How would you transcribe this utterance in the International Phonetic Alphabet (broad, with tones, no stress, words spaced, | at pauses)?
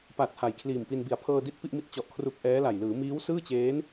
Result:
pa˨˩t̚ ha˨˩jkʰliː˨˩mpi˧n bi˨˩a̯pʰɤː˧di˦˥t̚ pi˥˩ʔmi˥˩t̚ t͡ɕɔ˨˩ʔkʰru˨˩k̚ ʔɛː˦˥la˨˩j lɯː˩˦ miː˦˥wsɯː˥˩t͡ɕeː˦˥n